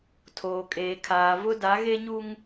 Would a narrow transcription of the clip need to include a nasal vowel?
no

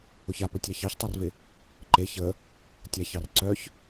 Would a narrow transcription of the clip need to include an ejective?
no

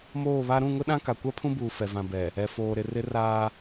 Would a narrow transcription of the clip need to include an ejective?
no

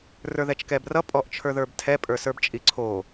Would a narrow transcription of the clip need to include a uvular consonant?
no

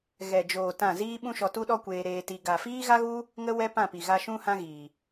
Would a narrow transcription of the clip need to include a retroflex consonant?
no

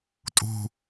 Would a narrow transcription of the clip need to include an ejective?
yes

